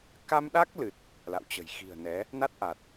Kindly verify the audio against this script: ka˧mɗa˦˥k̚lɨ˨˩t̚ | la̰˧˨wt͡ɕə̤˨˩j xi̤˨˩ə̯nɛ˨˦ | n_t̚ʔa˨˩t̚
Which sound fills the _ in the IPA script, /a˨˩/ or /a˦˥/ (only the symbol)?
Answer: a˦˥